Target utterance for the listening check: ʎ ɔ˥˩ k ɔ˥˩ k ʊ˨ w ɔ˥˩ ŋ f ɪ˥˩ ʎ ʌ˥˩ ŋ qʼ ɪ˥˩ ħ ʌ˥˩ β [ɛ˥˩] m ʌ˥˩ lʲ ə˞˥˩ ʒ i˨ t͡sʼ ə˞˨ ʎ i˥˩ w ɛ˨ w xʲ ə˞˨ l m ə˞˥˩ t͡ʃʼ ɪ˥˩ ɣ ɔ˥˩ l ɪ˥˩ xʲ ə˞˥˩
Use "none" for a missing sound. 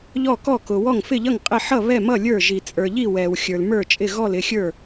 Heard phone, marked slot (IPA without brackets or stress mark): ɛ˥˩